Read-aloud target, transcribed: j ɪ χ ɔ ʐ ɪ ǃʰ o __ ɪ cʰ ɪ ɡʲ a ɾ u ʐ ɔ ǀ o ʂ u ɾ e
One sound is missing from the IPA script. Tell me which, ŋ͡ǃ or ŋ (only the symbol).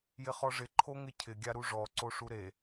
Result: ŋ